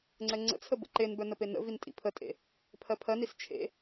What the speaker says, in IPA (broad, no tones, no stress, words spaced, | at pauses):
ŋ͡ǀɛŋ͡ǀə̰t͡sʰə bə̰ǃenbœ nəpenə̰vin tʼḭpʰətʼḛ | pʰɜpʰɜnis t͡ʃʰḛ